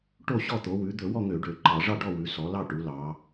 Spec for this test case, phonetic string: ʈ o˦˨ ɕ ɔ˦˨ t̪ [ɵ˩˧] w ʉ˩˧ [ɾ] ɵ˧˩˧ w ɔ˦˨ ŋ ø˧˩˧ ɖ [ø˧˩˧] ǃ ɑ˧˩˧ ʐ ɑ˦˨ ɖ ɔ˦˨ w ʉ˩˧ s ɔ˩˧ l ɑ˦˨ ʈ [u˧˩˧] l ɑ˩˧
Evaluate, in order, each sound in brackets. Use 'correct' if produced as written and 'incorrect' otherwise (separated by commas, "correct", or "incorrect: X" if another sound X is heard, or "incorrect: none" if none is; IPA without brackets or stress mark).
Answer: incorrect: o˩˧, incorrect: d̪, correct, incorrect: u˩˧